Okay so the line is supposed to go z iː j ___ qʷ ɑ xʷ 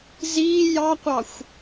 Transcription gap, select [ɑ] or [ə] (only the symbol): ɑ